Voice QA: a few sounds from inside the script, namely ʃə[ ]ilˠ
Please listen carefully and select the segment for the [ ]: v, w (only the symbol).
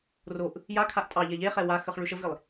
v